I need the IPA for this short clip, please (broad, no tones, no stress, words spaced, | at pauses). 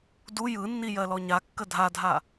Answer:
du jɯnːijɜlɔ ɲakːə dʱadʱa